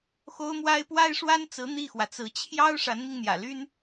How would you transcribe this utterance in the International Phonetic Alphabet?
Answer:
xo˥ʊ̯mwa˥ɪ̯ pwa˥ɪ̯ʂwa˥nt͡sɹ̩˧˥ n̪i˥˩xwä˩t͡sɹ̩˧˥ t͡ɕʰjɑ˥ʊ̯ ʂa˧˥nmi˧ŋn̪jä̰˨˩ly˥n

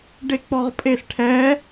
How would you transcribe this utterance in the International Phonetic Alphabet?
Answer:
ɖek͡pɔʁpʼesʈʰɛ

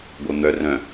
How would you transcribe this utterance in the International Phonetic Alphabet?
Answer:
ɡʷɤn̪œ rœ̃

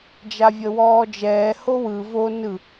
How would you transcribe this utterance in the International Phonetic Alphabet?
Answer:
d͡ʒavʲəwɔːd͡ʒɛː howɯ vo nɯ

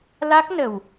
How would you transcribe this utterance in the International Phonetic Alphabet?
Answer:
la˦˥k̚nə˨˩w

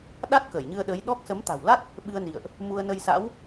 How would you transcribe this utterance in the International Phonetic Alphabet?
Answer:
ɗa˦˥t̚ kəː˧˩jɲɨ˧ə̯ ɗə˨˦jɗɔ˦˥k̚ sə˨˦mt̪a̤˨˩wla˦˥t̚ | ɓɨ˧ə̯nḭ˧˨ə̯ʔ | mu˧ə̯nə˧jsa̰˧˥w

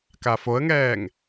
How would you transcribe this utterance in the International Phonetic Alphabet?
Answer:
kafoə̯ŋɛːŋ

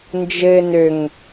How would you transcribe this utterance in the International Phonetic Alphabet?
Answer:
nd͡ʒɘ nøŋ

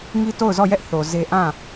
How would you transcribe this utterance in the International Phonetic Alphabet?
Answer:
ŋi˦to˦˨ʊ̯zɔ˦˨jɛ˦ʔ θo˨ ze˦ ʔã˦˨

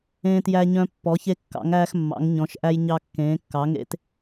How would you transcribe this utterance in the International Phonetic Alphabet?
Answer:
ẽː˧tjæ˧ɲœ̃˧ pːɔ˩˧çe˧kːɑ̰˩˧ŋæː˧x mːɑ̰˩˧ŋ ɲɔ̃˩˧ʃʔæ˧j ɲɑ˧kːẽː˩˧kːɑ˩˧ŋḛ˧t

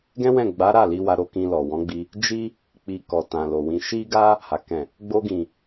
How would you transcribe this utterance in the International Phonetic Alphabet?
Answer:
ɡɛ̃˦wɛ̃˦˨ ɡ͡ba˨˦ ɾa˦˨ li˧wa˧ɾo˧ kĩ˧lɔ˨ wɔ̃˨˦ɡ͡bi˧ | d͡ʒi˦ | k͡pi˨ kɔ˨tã˨lo˨wĩ˧ ʃi˦ɡa˦ | ha˨ kɛ̃˨ | ɡ͡bo˧ɡĩ˨

